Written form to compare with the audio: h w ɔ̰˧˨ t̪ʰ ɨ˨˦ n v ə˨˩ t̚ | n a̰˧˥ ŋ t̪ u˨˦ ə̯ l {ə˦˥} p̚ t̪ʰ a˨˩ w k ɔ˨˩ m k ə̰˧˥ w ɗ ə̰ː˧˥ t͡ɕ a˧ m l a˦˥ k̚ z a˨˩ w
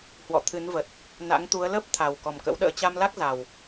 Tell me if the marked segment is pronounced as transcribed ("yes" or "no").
yes